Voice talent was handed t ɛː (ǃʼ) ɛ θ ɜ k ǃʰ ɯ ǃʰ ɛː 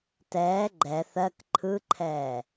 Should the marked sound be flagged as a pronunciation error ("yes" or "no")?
yes